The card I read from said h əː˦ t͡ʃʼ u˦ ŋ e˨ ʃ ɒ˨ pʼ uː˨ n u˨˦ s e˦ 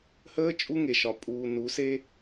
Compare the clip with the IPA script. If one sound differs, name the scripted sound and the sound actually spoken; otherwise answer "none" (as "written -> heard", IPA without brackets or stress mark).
none